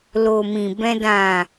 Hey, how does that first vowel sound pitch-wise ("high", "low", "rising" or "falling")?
low